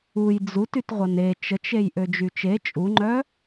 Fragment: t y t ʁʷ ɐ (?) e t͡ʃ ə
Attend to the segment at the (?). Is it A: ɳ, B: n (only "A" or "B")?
B